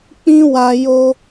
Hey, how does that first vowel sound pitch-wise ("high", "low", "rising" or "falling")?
high